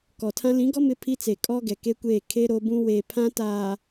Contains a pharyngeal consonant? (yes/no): no